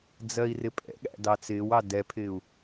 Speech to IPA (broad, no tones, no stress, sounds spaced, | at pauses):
d͡z ɜ i̯ r ɪ pʼ ɛ̰ ɠ æ̰ d ɑ t͡s ɪː w ɑ d ɛ pʰ ɪː u̯